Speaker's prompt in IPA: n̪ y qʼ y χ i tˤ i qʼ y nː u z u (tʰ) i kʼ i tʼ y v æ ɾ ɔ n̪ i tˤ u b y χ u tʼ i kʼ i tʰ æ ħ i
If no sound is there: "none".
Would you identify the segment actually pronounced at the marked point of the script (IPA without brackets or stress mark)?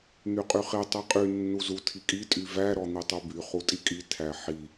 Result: tʰ